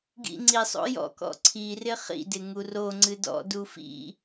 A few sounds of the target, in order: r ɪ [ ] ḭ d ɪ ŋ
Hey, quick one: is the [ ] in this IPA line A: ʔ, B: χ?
B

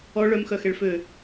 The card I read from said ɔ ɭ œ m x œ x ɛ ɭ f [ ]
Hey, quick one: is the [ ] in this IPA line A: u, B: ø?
B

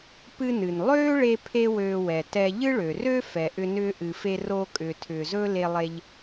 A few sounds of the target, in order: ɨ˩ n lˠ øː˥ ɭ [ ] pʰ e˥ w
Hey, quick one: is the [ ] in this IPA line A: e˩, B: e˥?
B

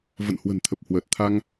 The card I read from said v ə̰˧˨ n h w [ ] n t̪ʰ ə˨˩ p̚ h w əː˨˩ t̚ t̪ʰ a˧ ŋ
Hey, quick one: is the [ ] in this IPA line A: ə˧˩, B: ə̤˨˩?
B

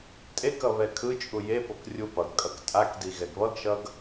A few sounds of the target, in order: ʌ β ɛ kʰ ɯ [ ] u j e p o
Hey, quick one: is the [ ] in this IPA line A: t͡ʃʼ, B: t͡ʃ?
A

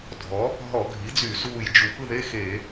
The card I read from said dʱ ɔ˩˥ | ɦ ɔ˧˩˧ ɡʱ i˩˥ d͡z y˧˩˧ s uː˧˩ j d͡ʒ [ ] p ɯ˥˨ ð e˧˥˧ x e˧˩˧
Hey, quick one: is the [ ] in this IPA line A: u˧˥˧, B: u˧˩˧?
B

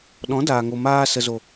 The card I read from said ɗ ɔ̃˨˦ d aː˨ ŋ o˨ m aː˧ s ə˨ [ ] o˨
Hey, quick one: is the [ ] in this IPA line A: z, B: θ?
A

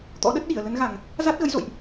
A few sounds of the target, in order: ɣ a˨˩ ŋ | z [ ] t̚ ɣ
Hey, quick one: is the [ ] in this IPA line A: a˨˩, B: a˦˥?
B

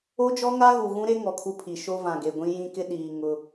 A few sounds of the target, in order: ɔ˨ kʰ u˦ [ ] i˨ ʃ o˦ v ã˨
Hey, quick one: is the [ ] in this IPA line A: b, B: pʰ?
B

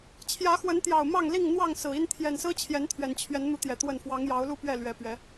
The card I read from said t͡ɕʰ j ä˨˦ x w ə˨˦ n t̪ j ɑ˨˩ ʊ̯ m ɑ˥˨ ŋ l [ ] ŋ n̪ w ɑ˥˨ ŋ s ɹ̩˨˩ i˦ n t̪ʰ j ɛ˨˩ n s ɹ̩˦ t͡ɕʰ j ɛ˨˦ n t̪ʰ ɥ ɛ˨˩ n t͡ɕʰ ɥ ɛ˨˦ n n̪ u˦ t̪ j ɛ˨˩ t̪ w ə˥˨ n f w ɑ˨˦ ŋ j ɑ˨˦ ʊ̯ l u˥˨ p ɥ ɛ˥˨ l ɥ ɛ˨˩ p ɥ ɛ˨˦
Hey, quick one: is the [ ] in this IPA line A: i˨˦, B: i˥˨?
B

